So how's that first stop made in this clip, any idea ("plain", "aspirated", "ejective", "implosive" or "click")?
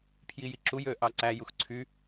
aspirated